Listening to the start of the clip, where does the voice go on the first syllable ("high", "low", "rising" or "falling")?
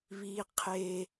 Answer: high